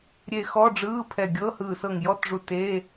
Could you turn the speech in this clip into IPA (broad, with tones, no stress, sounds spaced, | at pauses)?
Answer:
ɾʲ e˧˩ x ɔ˧˥˧ ɖ͡ʐ ɯː˧˥˧ pʰ ɛ˧˩ ɡʲ ɤː˧˥˧ h ɯː˧˩ s ɤ˧˩ ŋ j ɔ˧˥˧ t ʐ u˧˩ t eː˧˥˧